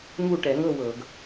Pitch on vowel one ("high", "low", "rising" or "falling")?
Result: falling